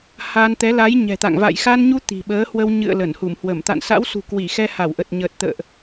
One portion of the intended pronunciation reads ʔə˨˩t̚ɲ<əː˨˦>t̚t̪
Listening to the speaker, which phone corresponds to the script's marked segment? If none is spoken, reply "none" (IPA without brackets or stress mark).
əː˨˩